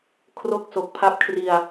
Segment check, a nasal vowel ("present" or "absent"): absent